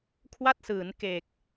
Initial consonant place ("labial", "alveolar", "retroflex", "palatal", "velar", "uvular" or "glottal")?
velar